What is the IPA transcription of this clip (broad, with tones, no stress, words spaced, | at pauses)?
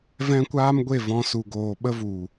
vɛ̃˦ kʷaː˦mɡʷe˦˨vɔ̃˧ su˨ɡoː˨ɓə˦ vu˨